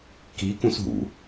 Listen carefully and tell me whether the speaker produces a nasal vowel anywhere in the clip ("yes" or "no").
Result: yes